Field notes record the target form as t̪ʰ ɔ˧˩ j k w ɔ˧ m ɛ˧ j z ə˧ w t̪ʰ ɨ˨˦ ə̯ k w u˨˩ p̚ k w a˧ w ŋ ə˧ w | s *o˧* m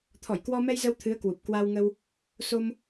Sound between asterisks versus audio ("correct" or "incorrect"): correct